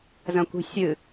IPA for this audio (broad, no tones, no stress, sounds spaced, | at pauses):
z ɐ̃ kʷ i̤ sʲ ɨ